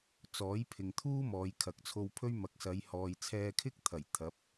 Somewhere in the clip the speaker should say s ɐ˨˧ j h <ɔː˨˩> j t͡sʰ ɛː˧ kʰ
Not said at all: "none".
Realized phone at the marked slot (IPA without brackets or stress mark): ɔː˨